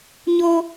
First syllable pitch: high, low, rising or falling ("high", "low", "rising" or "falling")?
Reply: high